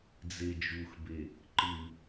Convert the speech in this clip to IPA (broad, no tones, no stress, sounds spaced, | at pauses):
d͡z e d͡ʒ u x b e | ǃ ɨ